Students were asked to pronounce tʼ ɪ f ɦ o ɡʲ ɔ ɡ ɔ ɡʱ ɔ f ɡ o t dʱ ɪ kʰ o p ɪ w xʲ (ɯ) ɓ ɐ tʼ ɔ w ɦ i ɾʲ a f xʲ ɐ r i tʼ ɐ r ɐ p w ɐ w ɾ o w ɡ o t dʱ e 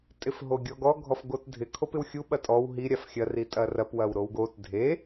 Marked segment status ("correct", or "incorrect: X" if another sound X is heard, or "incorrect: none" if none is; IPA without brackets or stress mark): incorrect: u